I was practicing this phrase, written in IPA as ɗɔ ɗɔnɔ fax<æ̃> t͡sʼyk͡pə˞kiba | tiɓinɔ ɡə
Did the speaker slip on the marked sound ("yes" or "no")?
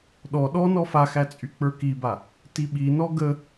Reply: yes